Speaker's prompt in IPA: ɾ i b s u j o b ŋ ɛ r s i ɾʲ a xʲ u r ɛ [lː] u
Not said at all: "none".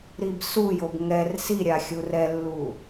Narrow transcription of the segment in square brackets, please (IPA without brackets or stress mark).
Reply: lː